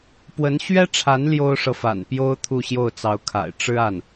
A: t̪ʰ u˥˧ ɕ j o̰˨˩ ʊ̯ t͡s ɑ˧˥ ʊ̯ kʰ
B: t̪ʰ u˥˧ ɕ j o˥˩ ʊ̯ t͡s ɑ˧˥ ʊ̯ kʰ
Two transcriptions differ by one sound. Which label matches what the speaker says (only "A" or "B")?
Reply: B